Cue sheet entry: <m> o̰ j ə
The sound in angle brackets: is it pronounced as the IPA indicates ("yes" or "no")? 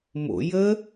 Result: yes